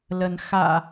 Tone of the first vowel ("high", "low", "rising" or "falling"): rising